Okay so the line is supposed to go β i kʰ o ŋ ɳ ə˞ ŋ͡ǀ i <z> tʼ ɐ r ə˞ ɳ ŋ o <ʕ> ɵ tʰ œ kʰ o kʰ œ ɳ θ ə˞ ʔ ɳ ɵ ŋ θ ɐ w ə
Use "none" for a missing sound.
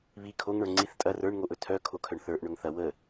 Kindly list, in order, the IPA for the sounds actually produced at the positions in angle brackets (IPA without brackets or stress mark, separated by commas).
θ, ʔ